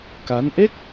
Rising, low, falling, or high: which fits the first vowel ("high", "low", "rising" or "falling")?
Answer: rising